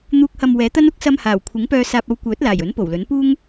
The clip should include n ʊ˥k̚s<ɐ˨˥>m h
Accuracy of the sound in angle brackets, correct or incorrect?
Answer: incorrect: ɐ˧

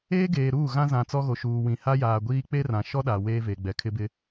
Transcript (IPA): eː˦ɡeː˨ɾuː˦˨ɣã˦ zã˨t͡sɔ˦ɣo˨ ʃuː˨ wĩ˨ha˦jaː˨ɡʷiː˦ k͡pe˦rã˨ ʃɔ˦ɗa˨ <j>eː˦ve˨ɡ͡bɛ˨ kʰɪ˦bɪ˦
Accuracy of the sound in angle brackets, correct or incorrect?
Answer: incorrect: w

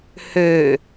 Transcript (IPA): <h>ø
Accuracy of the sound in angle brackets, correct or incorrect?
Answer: correct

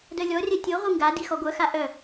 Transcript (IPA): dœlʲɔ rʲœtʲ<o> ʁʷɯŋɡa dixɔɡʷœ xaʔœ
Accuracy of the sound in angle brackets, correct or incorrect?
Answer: correct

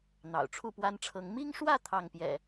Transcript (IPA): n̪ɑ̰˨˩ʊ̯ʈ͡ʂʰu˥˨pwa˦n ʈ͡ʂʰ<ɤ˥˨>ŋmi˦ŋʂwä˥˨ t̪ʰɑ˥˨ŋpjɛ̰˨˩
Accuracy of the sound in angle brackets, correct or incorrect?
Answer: incorrect: ɤ˨˦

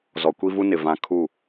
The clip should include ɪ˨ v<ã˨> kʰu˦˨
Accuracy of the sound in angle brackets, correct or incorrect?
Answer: correct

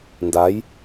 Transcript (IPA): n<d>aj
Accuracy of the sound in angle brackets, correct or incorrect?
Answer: correct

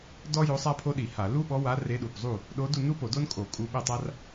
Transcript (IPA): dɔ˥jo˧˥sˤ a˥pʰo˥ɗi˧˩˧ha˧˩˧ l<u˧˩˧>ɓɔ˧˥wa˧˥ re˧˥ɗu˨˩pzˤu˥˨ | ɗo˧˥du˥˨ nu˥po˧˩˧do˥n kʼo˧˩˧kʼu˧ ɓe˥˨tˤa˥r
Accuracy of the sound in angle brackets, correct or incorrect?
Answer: incorrect: u˥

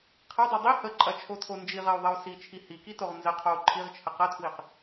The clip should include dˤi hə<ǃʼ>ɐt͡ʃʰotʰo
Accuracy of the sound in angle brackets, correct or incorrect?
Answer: correct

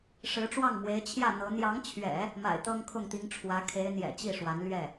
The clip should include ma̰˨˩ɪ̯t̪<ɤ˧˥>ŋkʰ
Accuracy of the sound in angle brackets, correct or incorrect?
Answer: incorrect: ɤ˥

